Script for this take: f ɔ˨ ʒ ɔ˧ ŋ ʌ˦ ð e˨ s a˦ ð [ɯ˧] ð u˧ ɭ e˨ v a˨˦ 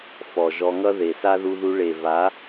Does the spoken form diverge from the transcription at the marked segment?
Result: yes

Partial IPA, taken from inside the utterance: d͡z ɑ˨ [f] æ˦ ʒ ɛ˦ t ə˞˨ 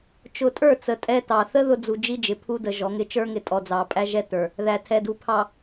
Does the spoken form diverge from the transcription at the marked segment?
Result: yes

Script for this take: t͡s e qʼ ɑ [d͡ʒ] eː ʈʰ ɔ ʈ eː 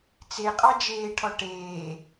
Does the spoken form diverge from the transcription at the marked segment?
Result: no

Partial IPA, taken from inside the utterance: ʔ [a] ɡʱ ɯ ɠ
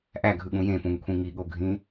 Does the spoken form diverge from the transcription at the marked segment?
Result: yes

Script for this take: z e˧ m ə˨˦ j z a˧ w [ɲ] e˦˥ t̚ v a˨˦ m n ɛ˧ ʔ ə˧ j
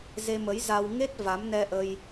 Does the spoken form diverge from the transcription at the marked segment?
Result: yes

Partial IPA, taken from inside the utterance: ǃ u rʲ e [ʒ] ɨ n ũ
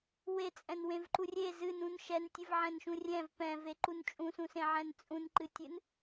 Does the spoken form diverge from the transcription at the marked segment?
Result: yes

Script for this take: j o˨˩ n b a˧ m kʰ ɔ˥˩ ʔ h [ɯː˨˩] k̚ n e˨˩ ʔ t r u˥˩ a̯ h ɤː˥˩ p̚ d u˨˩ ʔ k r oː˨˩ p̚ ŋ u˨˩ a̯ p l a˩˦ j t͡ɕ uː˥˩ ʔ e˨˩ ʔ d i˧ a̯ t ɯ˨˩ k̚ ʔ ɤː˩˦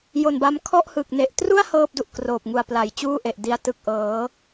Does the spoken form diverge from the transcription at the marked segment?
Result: no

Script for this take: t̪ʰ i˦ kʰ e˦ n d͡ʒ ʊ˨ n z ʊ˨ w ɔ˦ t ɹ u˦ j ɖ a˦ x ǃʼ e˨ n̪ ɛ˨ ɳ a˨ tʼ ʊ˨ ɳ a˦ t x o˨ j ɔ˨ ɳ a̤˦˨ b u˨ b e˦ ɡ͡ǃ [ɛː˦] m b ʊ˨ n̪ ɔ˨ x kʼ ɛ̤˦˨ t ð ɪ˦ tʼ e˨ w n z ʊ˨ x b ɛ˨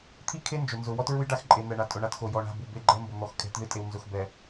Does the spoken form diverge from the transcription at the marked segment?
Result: yes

